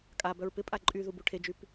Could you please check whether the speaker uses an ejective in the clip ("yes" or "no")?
yes